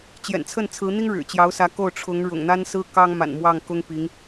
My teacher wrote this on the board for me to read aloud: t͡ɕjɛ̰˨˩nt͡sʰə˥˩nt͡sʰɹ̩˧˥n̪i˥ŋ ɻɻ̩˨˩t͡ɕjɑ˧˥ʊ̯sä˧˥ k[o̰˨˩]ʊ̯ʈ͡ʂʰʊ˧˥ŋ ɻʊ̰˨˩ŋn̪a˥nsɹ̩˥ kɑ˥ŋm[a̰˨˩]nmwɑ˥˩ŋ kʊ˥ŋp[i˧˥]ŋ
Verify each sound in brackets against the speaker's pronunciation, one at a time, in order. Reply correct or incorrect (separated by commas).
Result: incorrect, correct, correct